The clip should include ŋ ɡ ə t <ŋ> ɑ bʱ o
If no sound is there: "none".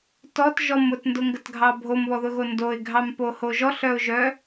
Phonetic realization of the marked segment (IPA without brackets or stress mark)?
ɡʱ